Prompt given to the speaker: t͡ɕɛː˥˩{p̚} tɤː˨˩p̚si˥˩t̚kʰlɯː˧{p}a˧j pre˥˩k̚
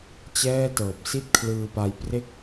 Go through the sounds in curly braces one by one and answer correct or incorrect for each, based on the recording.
incorrect: none, correct

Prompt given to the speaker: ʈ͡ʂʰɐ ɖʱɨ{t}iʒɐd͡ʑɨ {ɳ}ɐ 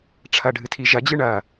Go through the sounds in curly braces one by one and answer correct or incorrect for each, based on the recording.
incorrect: tʰ, correct

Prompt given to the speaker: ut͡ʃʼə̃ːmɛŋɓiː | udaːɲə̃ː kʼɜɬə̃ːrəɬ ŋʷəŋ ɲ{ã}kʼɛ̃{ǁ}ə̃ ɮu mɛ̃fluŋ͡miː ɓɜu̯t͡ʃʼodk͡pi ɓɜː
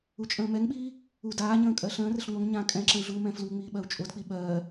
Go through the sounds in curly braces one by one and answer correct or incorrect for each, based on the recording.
correct, correct

